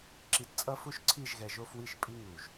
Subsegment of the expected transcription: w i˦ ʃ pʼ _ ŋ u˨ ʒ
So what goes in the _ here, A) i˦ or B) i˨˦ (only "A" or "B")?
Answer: A